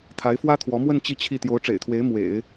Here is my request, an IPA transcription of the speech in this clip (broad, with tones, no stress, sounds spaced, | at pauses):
t̪ʰ a˧˥ ɪ̯ f w ä˥ t̪ʰ w ɔ˧˥ m w ə˥˧ n t͡ɕ i˥˧ t͡ɕʰ i˥˩ t̪ j o˧˥ ʊ̯ ʈ͡ʂ ḛ˨˩ ɪ̯ t̪ʰ w e˧˥ ɪ̯ m w ḛ˨˩˦ ɪ̯